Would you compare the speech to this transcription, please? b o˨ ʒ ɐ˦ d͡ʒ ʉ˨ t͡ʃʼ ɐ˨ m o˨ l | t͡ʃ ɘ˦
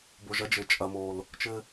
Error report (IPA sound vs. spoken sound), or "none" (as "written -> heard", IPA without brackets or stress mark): ʉ˨ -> ɘ˨